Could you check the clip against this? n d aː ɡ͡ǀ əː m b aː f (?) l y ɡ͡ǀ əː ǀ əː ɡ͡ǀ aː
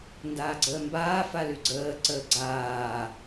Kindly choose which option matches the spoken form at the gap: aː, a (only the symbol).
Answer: a